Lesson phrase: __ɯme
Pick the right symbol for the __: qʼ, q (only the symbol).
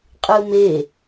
qʼ